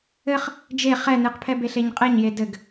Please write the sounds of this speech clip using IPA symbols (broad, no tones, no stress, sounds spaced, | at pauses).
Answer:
ɘ χ | d͡ʒ e χ ɛ n ɨ q pʰ ɛ b e ɬ e ɲ qʼ ɛ ɲ j e d ɘ ɡ